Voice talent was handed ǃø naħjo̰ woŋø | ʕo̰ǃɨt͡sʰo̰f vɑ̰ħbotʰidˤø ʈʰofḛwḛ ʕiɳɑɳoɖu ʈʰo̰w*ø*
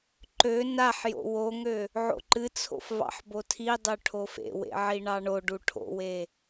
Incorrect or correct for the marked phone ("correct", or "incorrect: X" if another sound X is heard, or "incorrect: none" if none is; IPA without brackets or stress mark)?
incorrect: e